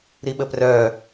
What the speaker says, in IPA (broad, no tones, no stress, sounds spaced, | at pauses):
ɾ i ɓ ə p r œː